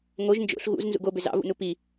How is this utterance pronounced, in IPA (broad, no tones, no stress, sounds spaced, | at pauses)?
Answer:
ŋ o ʒ n d͡ʒ o̰ ɬ ɣ ṵ z n z ṵ ɡ o b ʏ z ɑ̰ v ṵ n u p i